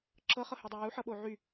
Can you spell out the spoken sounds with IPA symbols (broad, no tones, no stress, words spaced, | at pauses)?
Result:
ǁɤχɤhydˤo juħɤɓo ʕy